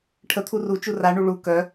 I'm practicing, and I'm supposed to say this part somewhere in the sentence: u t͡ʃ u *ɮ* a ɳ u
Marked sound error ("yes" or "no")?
yes